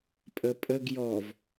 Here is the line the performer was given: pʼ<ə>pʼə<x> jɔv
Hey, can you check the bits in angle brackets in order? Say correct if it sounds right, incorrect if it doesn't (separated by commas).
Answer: correct, incorrect